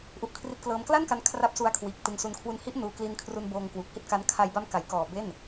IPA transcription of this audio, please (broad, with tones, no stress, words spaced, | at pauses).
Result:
ʔu˦˥ʔkʰri˦˥t̚klɤː˦˥m kla˥˩nka˧n kʰra˦˥p̚su˧a̯kʰwiː˨˩k̚ tɯ˧ŋsu˧n kʰwu˧nhi˦˥ʔ nuː˧kli˦˥n kʰru˧nboː˧ŋ kwuː˨˩k̚hi˥˩t̚ka˦˥n kʰa˧jba˦˥mka˩˦jkɔː˨˩ be˥˩n